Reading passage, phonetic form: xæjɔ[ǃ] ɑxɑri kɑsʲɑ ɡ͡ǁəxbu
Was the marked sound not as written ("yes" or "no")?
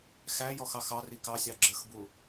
yes